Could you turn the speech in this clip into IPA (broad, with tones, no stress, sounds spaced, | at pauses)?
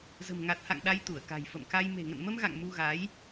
z ə̤˨˩ m ŋ a˨˩ t̚ h a̰˧˨ ŋ ɗ a˧ j t̪ u˧˩ ə̯ k a̤˨˩ j f ə̰˧˨ m k a˧ j m e̤˨˩ ŋ ə̰˧˨ n m ə˧ m ɣ a̰˧˨ ŋ m u˧ ɣ a˨˦ j